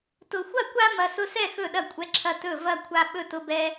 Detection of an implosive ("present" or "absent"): present